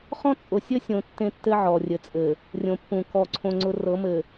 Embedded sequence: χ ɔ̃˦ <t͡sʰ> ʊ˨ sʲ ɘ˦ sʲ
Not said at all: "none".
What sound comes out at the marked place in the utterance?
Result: t͡sʼ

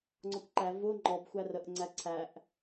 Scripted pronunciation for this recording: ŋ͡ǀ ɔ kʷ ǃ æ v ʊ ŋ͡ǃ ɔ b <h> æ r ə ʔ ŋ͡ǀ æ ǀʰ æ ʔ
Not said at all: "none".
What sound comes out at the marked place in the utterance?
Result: xʷ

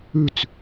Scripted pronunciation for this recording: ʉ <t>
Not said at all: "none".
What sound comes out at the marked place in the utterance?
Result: t͡s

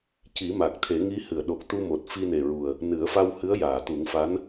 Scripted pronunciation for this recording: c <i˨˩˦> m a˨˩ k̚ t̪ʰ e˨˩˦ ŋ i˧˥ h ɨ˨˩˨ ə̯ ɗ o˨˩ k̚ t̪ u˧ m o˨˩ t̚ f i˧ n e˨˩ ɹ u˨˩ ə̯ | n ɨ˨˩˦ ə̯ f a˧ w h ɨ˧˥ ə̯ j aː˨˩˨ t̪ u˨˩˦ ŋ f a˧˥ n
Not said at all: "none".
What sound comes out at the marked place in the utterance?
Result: i˨˩˦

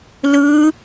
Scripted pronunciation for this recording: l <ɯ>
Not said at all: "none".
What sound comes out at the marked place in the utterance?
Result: ɯ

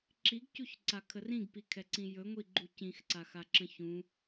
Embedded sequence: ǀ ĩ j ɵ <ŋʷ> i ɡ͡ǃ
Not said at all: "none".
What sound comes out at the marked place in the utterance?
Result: ŋʷ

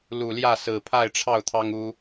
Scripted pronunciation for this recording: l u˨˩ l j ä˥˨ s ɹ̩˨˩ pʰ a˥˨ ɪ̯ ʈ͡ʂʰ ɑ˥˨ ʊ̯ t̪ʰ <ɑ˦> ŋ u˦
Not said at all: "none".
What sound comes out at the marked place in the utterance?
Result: ɑ˦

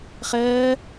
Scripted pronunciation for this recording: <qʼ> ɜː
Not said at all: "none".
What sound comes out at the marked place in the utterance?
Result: χ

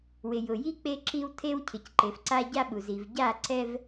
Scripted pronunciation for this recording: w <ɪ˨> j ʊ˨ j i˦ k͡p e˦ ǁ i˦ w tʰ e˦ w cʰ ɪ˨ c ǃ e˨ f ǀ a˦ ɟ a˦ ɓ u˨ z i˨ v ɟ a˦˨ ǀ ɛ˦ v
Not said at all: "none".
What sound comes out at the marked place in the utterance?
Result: ɪ˨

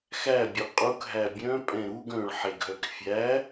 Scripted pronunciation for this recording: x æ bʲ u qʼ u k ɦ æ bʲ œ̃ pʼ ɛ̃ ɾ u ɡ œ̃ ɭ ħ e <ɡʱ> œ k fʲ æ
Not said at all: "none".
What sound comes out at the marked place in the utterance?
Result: ɡʱ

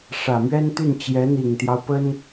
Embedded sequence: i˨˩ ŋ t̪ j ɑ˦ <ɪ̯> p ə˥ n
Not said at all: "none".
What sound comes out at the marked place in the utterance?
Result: ʊ̯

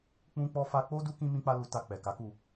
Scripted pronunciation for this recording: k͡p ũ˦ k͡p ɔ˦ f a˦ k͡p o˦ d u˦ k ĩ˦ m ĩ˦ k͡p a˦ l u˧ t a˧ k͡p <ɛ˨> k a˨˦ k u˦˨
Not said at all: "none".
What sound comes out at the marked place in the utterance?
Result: ɛ˨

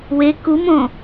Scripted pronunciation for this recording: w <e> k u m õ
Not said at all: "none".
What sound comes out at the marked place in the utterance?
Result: e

